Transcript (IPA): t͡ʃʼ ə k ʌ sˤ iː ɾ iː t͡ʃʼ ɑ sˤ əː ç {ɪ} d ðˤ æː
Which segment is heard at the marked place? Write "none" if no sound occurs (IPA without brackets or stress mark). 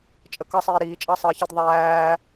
ɪ